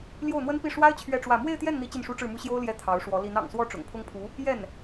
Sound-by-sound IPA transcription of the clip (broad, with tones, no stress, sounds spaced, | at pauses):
l j o˥˩ ʊ̯ n̪ w ə˥ n p i˥˩ ʂ w a˥ ɪ̯ t͡ɕʰ ɥ ɛ˥˧ ʈ͡ʂ w ä˥˧ m w e˥˧ ɪ̯ t̪ j ɛ˥˩ n n̪ i˧˥ t͡ɕ i˥˩ n ʂ u˥ ʈ͡ʂ ɻ̩˥˩ m u˥ ɕ j o˥ ʊ̯ l j ɛ˧˥ t̪ʰ ɑ˧˥ ʊ̯ ʂ w ɔ˧˥ l i˧˥ n ɑ̰˨˩ ŋ s w ɔ˥˩ ʈ͡ʂ ʊ̰˨˩ ŋ pʰ ʊ˥ ŋ pʰ u˧˥ | j ɛ˥˩ n